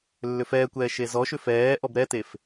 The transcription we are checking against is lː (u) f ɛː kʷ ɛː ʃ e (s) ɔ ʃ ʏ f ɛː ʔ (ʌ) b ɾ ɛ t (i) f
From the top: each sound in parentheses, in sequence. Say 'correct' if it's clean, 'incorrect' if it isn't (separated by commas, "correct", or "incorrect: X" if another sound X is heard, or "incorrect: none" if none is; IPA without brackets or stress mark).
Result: incorrect: ʏ, incorrect: z, incorrect: ɔ, incorrect: e